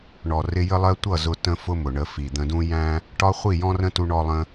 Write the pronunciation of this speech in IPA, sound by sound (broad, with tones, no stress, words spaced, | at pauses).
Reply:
ɳɔ˨ rɪ˧jə˦lˠɜ˦ tʷʌ˦˨zʊ˧tə̃˧ fʊ˦mʊ˨ɳə˧ fi˨d̪ə̃˧dũ˦ jæ̃˦ | ʈɒ˦χʷi˦˨jɔ̃˦ rə̃˦tu˧ɳɔ˧ lˠə̃˧